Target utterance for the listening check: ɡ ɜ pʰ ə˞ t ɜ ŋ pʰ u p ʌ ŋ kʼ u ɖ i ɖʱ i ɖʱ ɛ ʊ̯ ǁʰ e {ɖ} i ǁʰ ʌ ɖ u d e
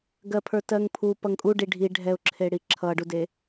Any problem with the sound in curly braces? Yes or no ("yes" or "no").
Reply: yes